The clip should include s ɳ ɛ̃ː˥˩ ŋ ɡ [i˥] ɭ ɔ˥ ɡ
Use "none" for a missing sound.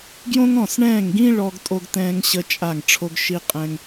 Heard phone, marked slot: ĩ˥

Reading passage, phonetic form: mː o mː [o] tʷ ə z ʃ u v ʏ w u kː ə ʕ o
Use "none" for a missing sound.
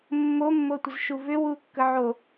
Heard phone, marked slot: o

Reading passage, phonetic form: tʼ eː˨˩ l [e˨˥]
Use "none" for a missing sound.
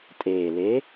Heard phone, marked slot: e˨˥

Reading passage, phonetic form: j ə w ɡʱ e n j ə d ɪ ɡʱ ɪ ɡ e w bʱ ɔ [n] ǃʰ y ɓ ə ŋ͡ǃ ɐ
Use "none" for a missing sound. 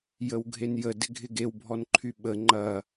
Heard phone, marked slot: n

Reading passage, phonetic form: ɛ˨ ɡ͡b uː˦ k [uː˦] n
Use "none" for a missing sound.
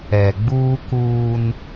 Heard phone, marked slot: uː˦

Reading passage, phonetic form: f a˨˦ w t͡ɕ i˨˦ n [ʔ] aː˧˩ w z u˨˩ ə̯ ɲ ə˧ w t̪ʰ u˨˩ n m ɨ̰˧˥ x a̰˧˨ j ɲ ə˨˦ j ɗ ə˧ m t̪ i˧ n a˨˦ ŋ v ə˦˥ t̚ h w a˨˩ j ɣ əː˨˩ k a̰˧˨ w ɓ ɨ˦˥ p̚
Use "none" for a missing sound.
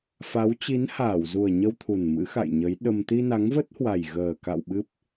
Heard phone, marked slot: h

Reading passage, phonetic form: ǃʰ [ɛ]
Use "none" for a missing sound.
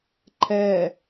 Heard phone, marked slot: ɛ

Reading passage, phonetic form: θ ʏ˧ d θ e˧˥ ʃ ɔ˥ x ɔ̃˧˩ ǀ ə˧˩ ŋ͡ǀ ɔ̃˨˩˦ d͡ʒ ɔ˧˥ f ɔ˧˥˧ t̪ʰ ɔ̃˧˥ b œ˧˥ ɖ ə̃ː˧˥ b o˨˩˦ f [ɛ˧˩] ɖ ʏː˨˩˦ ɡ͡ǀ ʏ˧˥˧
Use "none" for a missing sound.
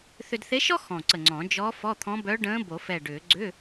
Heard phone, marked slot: ɛ˧˩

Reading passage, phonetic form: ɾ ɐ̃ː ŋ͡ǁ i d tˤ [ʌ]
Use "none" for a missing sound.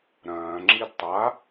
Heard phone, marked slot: a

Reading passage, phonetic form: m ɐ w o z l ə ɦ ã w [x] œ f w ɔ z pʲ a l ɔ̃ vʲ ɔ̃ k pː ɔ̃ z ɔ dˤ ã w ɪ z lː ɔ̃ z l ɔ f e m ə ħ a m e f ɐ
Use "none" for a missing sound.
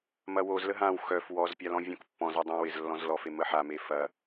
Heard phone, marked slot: x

